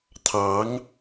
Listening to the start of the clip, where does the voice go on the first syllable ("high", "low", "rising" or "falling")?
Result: rising